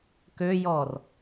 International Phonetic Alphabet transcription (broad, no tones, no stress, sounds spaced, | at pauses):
k ø j ɔ r